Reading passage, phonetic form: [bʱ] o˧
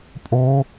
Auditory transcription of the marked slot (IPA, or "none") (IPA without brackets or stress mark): pʼ